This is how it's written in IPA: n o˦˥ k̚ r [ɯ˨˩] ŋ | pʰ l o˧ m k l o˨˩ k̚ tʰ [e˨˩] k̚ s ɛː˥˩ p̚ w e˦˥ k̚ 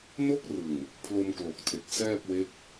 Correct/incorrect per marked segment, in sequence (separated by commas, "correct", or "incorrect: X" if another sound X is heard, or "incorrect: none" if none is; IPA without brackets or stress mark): correct, correct